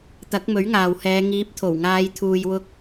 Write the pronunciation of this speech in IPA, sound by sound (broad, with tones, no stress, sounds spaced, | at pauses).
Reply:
t̪ ɐ˨˥ k̚ m ɵ˨˥ ɥ ŋ aː˨ w h ɛː˨˧ ŋ iː˨˥ p̚ t̪ʰ o˨˩ w ŋ aː˨˧ j t̪ʰ uː˨ j w ʊ˧ k̚